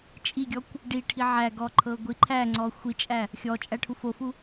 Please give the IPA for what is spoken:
t͡ʃʼ i ɡʲ ɔ kʷ | ɖ i ʈʰ i ʕ æ ɡ ɔ ǃʰ ɤ ɡʷ i ǃʰ æ ŋ͡ǀ ɔ xʷ i t͡ʃʼ æ | xʲ ɔ t͡ʃʼ æ ʈʰ u f o f u

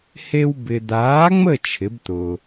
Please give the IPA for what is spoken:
h e˦ w b ɪ˨ d̪ aː˨˥ ŋ͡m ə˦˨ t͡ʃʰ ɪ˨˥ b t̪ ʊː˨

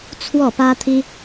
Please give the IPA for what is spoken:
t͡sʰ w ɔ˥˩ p ä˥ t̪ʰ i˥

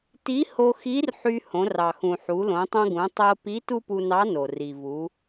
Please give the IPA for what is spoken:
t i˧˥ h o˧ x i˧˥ r ħ y˧ h õ˩˧ r ɑ˩ x ũ˩ ħ u˩˧ l õ˩˧ tˤ õ˧ ɡ ũ˩˧ tˤ o˧ p i˧˥ t u˥ p u˧ n ɑ˧˥ n o˩ r i˩ v u˩˧

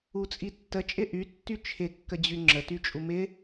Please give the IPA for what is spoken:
u t͡sʼ i tː ə t͡ʃʼ ɪ ʔ y tː y t͡ʃʰ ɪ kː ə d͡ʑ y ŋ͡ǁ ə t y t͡ʃʼ u m ɪ

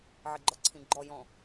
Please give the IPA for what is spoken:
ʕ ɪ ɡ͡ǃ ɒ ǀʰ ĩ ɡ͡ǃ ɔ j ɔ̃

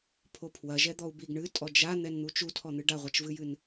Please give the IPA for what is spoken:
pʰ o pʰ w ɐ ʒ ɛ d̪ ɔ u̯ b i ɡ ɳ ɨ tʼ ɔ d͡ʒ a n̪ ɛ n n̪ u t͡ʃ u tʰ ɔ n̪ ɨ ɖ a ʁʷ ɐ t͡ʃ v ɨ j ɨ n

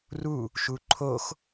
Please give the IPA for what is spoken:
r u | ʃ u ǃʰ o x

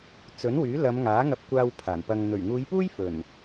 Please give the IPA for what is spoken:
t͡s ɵ˨˥ n w yː˨˥ l ɐ˨˧ m ŋ aː˨˥ ŋ ɐ˧ p̚ kʷ aː˧ w pʰ aː˨˩ n p ɐ˧ ŋ n̪ ɵ˨˩ ɥ ŋ uː˨˧ j p uː˥ j f ɵ˨˩ n

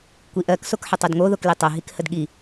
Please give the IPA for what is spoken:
kʷ i ʔ ɜ k s o k ħ ə tˤ o d ŋ o ð o k l i tˤ ə ɦ i k h ə d ɠ i

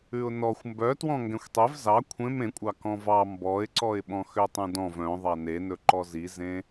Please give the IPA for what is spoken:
ʉ ʊ̯ n ɔ xʷ m b œ t w ɔ̃ ŋ ɡ ɛ̃ xʷ tˤ e v z ɑ kʷʰ ẽ m ẽ kʷʼ ɑ k ɔ̃ v ɑ m b ɔ ɪ̯ ǀ ɔ ɪ̯ ɓ ɔ̃ x ø tˤ ũ d ɔ̃ v œ̃ ðˤ ɑ n e n ɵ ǃ ɔ z i z ẽ

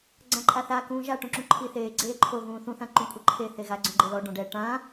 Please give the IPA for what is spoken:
ɡ͡ǀ ã ǃʼ a θ a k ũː ʒ a ʈ ũ ǁ ũ ǃʰ i θ eː ɡ͡ǀ eː ǃʰ o ɣ ũː θ ũ θ ã ǃ ũ kʷʼ ɯ ǃʰ e θ e ɣ a ɡ͡ǀ ɔ̃ ɡ͡ǃ e l ɔ ɖ ɔ̃ ɖ ɛ ʈ ã

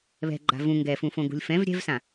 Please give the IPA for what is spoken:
β ɛ̤ ɡ͡ǃ a̤ v ũ ŋ ɡ ɛ f ũ f õ ɡ ṳ lʲ f ɛ̃ v ɾʲ ɛ̤ v s ã

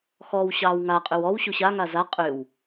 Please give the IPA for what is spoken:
x ɔ w ɕ ɑː w ŋ a qʼ ʏ w ɔ w ɕ u ɕ a ŋ a z a qʼ ʏ w

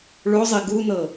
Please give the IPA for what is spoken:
ɭ o zˤ i ɡ u n ɤ

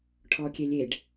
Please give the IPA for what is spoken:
ʈʰ ɔ kʲ e lʲ e ɖ

